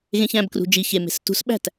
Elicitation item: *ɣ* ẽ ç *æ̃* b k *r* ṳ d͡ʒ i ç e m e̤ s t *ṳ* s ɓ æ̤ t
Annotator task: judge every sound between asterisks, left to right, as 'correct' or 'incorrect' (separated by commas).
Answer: correct, correct, correct, correct